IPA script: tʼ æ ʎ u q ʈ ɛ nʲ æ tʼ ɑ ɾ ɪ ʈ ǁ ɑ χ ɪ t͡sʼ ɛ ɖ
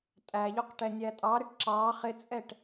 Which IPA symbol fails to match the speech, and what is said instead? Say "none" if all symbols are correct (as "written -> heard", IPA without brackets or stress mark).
ɖ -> ʈ